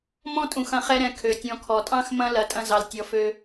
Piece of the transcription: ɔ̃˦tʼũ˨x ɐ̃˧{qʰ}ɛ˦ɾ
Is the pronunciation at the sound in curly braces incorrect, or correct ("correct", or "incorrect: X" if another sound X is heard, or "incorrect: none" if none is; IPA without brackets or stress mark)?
incorrect: χ